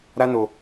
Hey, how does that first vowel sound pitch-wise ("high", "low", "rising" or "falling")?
high